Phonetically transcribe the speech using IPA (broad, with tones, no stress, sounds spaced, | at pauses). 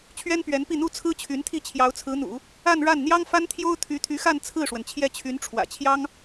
t͡ɕʰ ɥ ɛ˥ n p ɥ ɛ˧˥ n p i˥˩ n̪ u˥ t͡sʰ ɹ̩˥ t͡ɕʰ y˧˥ n t̪ʰ i˥˩ t͡ɕʰ j ɑ˧˥ ʊ̯ t͡sʰ ɹ̩˧˥ n̪ ṵ˨˩˦ | a˥˧ n ɻ a˥˩ n n̪ j ɑ˥ ŋ f a˥ n t̪ʰ j o˥ ʊ̯ t̪ʰ y˧˥ t̪ʰ y˧˥ x a˥˧ n t͡sʰ ɹ̩˥˩ ʂ w ə˩ n t͡ɕʰ j ɛ˥˩ t͡ɕʰ y˧˥ n ʈ͡ʂʰ w ä̰˨˩ t͡ɕʰ j ɑ˥ ŋ